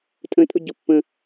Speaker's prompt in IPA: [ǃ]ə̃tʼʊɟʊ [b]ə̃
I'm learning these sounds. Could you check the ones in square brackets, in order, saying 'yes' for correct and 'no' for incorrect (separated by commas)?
no, no